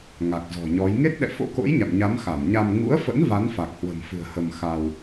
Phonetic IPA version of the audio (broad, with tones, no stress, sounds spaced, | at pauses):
ŋ a˨˩ k̚ z ɔ̤˨˩ ɲ ɔ˨˦ j ŋ e˦˥ t̚ ɗ ɛ̰˧˨ f o̰˧˥ k o̰˧˥ j ɲ a̰˧˨ m ɲ a˨˦ m x a˧˩ m ɲ a˧ m ŋ ṵ˧˥ ə̯ f ə̰˧˥ n v a˨˦ n f a˨˩ k̚ h w ə̤˨˩ m f ɨ̤˨˩ ə̯ h ə˧ m x a˧ w